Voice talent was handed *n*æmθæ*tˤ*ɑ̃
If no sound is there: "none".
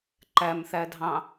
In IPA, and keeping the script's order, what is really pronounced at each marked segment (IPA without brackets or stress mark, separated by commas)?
ǃ, dʱ